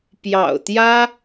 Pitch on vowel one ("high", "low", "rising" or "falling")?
low